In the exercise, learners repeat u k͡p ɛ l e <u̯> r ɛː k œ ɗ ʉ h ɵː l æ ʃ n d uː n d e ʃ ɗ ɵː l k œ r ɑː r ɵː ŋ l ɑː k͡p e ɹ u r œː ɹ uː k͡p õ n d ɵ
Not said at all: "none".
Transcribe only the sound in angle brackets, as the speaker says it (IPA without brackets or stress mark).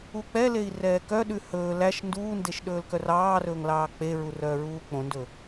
i̯